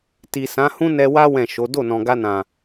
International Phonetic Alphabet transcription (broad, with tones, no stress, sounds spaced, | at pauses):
t i˨ s ã˨˦ h ũ˦ n ɛ˧ w a˦ w ɛ̃˦˨ ʃ o˨˦ d o˦˨ n ɔ̃˨ ɡ a˧ n ã˨